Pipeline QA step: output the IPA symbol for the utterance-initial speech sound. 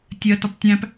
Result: tʲ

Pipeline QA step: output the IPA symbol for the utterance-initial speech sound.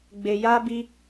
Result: ɡ͡b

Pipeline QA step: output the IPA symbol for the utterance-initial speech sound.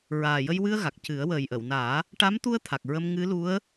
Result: ɹ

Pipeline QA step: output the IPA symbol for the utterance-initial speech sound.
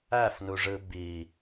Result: æ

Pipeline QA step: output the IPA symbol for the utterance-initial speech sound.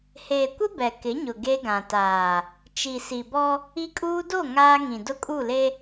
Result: h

